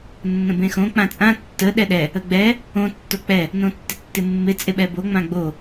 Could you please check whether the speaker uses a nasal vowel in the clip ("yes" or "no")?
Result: yes